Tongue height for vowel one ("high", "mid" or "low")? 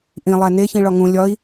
high